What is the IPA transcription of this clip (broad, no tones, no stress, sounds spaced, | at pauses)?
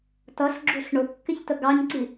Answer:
t ʌ ɬ ɡ͡ǁ u ɬ ɳ ʊ kː ɪ ç t ə ɡ ɑ ɲ ǀ i